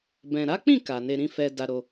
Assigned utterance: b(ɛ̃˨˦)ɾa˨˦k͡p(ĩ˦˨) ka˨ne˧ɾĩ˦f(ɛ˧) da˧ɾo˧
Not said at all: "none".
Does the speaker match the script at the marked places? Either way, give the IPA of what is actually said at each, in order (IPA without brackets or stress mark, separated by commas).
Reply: ɛ̃˨, ĩ˦˨, ɛ˧